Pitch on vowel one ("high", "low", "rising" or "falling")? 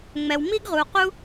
low